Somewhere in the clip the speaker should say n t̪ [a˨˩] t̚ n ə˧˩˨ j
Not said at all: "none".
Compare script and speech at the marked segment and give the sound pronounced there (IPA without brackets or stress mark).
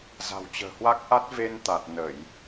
a˨˩